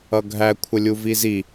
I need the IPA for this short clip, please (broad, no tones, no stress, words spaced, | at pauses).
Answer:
ʌɡʱæ kʷʰəlʲuvizi